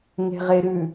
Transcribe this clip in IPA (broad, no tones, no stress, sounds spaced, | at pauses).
ŋ e̤ ʁ e ɾ ʉ